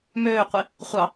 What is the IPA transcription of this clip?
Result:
m øː qʷ i | χʷ ɑ

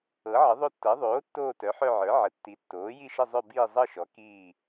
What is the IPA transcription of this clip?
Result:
ɤ˩˥ ʕ ə˩˥ ðˤ o˦˨ tː ɤ˩˥ ðˤ oː˩˥ tː oː˦˨ t œ˩˥ ħ œ˦˨ ʕ ə˞˩˥ ʕ ə˩˥ tː i˩˥ tː oː˩˥ j i˦˨ ʃ ə˦˨ zˤ œ˦˨ b iː˦˨ zˤ ɤ˦˨ ʃ ɔ˩˥ k iː˦˨

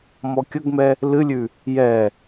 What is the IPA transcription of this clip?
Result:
m ɔ kʲ ə ɡ m ɛ | l ɨ lʲ ʉ | j ɛ

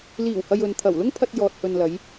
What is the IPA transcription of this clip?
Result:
l iː˨˩ w h ɐ˨ j ɵ˨ n t̪ʰ ɐ˨˩ w l ʊ˥ ŋ pʰ ɐ˧ t̚ j ɔː˨ t̚ h ɵ˨ n l ɐ˨˧ j

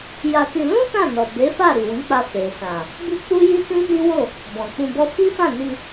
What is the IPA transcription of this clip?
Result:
j a˧ t i˧ l ũ˦ t ã˦˨ n ɔ˨ b e˨˦ f a˦˨ ɾ i˨ w ĩ˨˦ k͡p a˧ f e˨ s ã˨ | b i˦ k͡p u˦ j i˦ t ĩ˦ n i˦ w o˦˨ | b ɔ̃˨ k͡p ũ˧ b ɔ˦ f i˦ f ã˦˨ n i˧

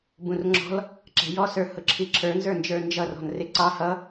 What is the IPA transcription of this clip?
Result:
b ũ r ŋ͡ǁ ɔ̤ l | ǁ ɛ̤ j ɔ s ə˞ h ʊ ǁʰ i ǁʰ ə˞ n z ə˞ n d͡ʒ ə˞ n d͡ʒ ʌ r ɔ̤ n r ɪ ǀ ɑ h ʌ

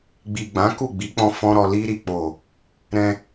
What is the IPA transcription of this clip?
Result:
ɡ͡b i˨ ɡ͡b ã˨˦ k u˦˨ ɡ͡b i˨˦ k͡p ɔ̃˧ f ɔ̃˦ ɾ ɔ˧ l i˧ ɾ i˨ k͡p o˨ | ɾ ɛ̃˧

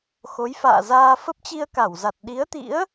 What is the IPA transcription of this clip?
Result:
x o˨˦ j f a̰ː˧˨ z aː˧ f ə˦˥ p̚ t͡ɕ i˧ ə̯ k a˧˩ w z a˨˩ t̚ ɗ i˨˦ ə̯ t̪ ḭ˧˥ ə̯

